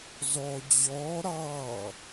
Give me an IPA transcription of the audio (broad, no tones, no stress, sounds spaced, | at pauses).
z ɔ d͡ʑ ɔ ɾ ɑ